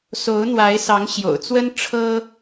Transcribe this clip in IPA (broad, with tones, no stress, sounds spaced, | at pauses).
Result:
s o˧˥ ʊ̯ n̪ w a˧˥ ɪ̯ s ɑ˧˥ ŋ ɕ j o̰˨˩ ʊ̯ t͡s w ə˥ n ʈ͡ʂʰ ɤ˥